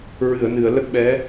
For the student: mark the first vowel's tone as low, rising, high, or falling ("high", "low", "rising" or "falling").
low